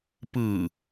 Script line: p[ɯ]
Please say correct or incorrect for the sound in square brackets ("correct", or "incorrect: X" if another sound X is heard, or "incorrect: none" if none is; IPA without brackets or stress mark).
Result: correct